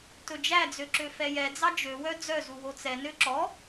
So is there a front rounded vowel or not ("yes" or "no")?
yes